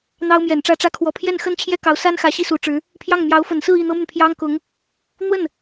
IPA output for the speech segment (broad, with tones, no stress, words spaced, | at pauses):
n̪ɑ˥ʊ̯mjɛ˨˩n ʈ͡ʂä˥˧ʈ͡ʂä˥˧ kʰwɔ˥˧ pʰjɛ˥˩nxə˥n t͡ɕʰjɛ˥kɑ˧˥ʊ̯sa˥n xä˧˥ɕi˥su˧˥ ʈ͡ʂɻ̩˧˥ | pʰjɑ˥˩ŋ mjɑ˧˥ʊ̯fə˨˩nsɹ̩˥˧ i˥˩n̪ɤ˥my˨n pʰjɑ˥ŋkʊ˧˥ŋ | n̪wə˥˩n